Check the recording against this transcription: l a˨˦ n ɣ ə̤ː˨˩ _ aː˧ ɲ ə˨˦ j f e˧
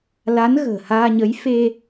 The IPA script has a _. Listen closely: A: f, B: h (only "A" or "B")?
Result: B